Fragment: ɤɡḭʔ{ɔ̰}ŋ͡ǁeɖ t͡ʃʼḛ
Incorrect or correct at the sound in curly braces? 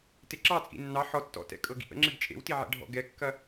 incorrect: ə̰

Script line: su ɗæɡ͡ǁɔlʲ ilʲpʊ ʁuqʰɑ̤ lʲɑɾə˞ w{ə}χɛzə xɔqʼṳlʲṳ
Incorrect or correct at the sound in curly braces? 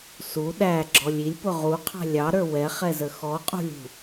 incorrect: ɛ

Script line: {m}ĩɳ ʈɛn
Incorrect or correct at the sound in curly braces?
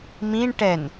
correct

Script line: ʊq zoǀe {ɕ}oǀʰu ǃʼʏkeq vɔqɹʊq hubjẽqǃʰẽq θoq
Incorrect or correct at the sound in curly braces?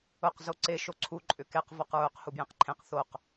incorrect: ʃ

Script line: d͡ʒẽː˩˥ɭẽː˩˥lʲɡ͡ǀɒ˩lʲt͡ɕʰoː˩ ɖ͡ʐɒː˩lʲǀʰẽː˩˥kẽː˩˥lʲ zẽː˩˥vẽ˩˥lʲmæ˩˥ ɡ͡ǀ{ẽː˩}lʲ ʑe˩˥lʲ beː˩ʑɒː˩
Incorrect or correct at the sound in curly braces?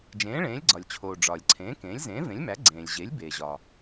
correct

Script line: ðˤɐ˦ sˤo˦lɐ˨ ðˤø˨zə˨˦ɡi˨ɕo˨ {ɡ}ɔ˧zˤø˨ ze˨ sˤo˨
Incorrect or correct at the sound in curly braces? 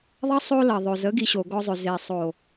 correct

